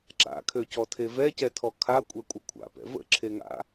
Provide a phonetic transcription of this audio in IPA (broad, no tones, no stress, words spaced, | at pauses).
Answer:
ǁa̰kʰøcɔtʰe vɛcɛtʰɔ kʰakʷʼɛkʷʼə kʷʰa̰pɛ̰ və̰ǁʰeŋa̰